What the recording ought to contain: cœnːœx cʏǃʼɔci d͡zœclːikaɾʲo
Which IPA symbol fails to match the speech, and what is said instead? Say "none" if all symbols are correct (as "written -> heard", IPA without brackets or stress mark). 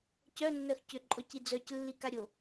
none